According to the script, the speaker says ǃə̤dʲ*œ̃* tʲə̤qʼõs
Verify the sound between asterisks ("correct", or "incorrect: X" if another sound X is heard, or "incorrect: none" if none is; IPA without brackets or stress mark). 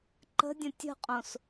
incorrect: ə̃